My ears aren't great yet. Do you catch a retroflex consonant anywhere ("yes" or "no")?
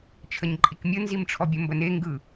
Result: yes